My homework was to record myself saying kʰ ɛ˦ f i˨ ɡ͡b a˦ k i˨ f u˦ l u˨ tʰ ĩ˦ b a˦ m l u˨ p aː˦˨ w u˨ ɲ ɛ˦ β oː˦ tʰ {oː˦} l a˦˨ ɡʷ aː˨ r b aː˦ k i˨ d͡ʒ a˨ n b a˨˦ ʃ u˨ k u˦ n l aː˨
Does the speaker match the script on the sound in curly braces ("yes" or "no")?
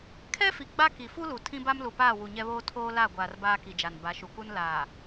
yes